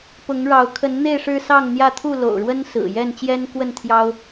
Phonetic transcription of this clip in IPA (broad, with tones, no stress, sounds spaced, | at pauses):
p ʊ˨˦ ŋ ɻ ɑ˨˦ ʊ̯ kʰ ə˨˦ n n̪ e˧ ɪ̯ ʂ ɻ̩˦ s ɑ˥˨ ŋ n̪ j ä˥˨ t̪ʰ u˥˨ l o̰˨˩ ʊ̯ ɻ w ə˦ n s ɹ̩˨˩ j ɛ˥˨ n t͡ɕ j ɛ˦ n k w ə˥˨ n t̪ʰ j ɑ˦ ʊ̯